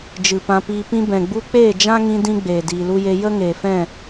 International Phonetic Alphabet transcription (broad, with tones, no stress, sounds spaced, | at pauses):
d͡ʒ ɨ˨ p ã˧ p iː˧ p ĩ˧ b ɛ̃˨ ɡ͡b u˧ k͡p eː˦˨ d͡ʒ ã˦ ŋ ĩ˧ d ĩ˦ ɡ͡b eː˨ d iː˨ l u˧ j e˧ j ə˦ ŋ eː˨ f ɛ̃˦˨